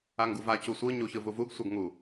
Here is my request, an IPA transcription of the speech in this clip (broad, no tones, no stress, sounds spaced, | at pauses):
a ŋ ɡ u v a c u sʷ ɯ ɲ u ç ɯ v u v u ɡ sʷ ʌ ɡ ŋ u